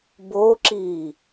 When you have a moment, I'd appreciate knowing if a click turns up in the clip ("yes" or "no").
yes